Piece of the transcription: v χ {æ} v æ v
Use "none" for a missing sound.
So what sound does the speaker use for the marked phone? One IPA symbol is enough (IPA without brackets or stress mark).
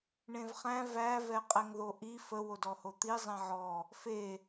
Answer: æ̃